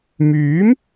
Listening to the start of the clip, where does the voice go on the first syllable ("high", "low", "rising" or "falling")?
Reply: rising